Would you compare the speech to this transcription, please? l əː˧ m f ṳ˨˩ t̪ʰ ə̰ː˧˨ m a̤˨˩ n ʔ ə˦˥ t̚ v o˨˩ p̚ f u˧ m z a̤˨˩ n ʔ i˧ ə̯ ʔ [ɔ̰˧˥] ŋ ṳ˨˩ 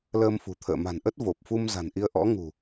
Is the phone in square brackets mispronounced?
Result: no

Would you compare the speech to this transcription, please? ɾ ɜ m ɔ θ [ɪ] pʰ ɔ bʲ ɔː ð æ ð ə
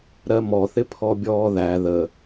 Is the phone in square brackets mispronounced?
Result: no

